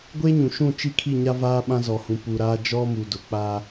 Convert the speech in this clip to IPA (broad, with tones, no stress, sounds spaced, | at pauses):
ɡʷ e˦ ɲ ũ˨ ʃ ũ˦˨ t͡ʃ i˦ kʰ i˦˨ ɲ a˦ v aː˦ ɓ ã˦ z ɔ˨ h ũ˨ p u˨ ɾ aː˦ d͡ʒ ɔ˦ m u˨ d ʊ˨ k͡p aː˦